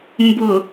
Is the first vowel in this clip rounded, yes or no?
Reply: yes